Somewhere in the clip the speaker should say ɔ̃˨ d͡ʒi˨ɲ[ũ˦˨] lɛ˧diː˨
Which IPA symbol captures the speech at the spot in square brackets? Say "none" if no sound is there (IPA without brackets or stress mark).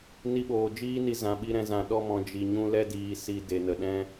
ũ˧